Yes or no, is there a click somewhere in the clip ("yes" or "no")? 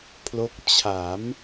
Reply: no